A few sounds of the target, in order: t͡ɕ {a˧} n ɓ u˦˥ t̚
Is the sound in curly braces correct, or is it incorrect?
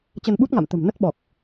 incorrect